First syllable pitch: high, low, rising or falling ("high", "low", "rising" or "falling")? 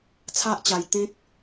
high